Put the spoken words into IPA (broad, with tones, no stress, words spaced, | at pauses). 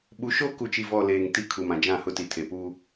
ɓu˨˦ʃo˦ ku˨t͡ʃi˨vɔ˨ leː˨ŋti˦kʰu˨mã˨ d͡ʒã˦˨hʊ˦ti˨tʰe˨ pu˦